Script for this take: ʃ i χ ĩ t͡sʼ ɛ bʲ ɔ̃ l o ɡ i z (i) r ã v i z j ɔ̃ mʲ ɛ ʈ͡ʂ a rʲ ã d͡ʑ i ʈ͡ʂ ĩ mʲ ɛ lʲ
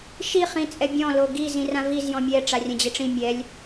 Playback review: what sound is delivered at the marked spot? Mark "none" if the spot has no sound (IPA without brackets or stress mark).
ĩ